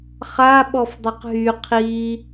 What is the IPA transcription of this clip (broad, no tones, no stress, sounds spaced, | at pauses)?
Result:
χ a ɓ ɔ f dˤ a q ɦ y qʰ i